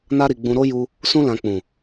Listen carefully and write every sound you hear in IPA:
na˧ɾi˨ ɡ͡bũ˨ɾo˧ ju˧ | sũ˧lã˨ k͡pũ˨

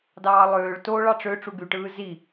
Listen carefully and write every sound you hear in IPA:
dɑːlˠøːɭ to ɭɑʈ͡ʂø ʈ͡ʂuɡyʈɯː zi

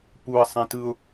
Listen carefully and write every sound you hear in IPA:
puə̯sˤẽ tɯʊ̯

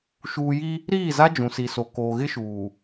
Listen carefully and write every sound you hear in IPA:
ʃuː˨ji˦ | ɾiː˦˨za˦ d͡ʒũ˨si˨so˨ koː˨ɣɪ˦ʃuː˨

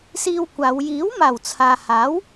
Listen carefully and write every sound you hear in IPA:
siː˧wkʷaː˨˧w jiː˨˥wmaː˨˩w t͡sʰaː˨haː˨˥w

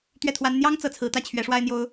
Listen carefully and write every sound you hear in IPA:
t̪ɥɛ˥˩t̪ʰwa˥n n̪jɑ˥ŋ t͡sɤ˧˥t͡sʰɹ̩˧˥t̪ä˥˩ t͡ɕʰɥɛ˧˥ʂwa˥ɪ̯n̪jo˥ʊ̯

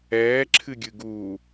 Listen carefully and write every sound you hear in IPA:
ɛːǁʰɨ ɡʲɨɡuː

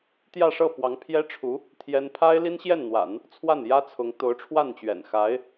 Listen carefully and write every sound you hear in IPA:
t̪jä˥˧ʂɤ˥˩ pwɑ˧˥ŋpʰjɛ˥ʈ͡ʂʰu˧˥ | t̪ʰjɛ˥n pʰa˥ɪ̯li˥nɕjɛ˥˩nn̪wa̰˨˩˦n | t͡sʰwa˥˩njä˥t͡sʰʊ˧˥ŋ t̪o˧˥ʊ̯ʈ͡ʂʰwa˥˩nt͡ɕɥɛ̰˨˩n xa˧˥ɪ̯

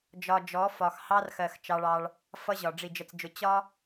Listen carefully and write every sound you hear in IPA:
d͡ʒɒ˨ d͡ʒɔ˨˦fɒ˨x hɑ˦rxɜ˨x t͡ʃɑ˦ɭɑ˦ɭ | fʌ˦ʑɒ˨ ɖ͡ʐi˨d͡ʒə˨t͡sd͡ʒʊ˨ t͡ɕɒ˦

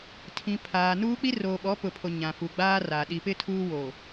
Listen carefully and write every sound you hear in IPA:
tʰĩ˨ pʰaː˨nuː˦ k͡pi˦roː˨ɓɔ˨˦ pʊ˨pʰo˨ ɲã˨fu˨ɡ͡baː˦ra˨ ɗi˨pɪ˦ tʰuː˦ woː˨

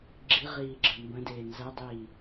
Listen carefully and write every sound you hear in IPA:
ɡ͡ǁiʁiːɡ͡ǁə mbə̃deː nzɐdˤiː

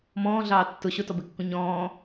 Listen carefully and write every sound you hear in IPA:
mɔ̃ːɮɑː tːʊ ɕʊtɔbekːũ ɲɔ̃ː

